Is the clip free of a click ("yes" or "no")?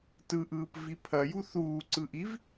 no